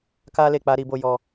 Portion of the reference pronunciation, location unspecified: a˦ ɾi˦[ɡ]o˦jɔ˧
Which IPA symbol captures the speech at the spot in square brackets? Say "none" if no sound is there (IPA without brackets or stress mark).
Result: b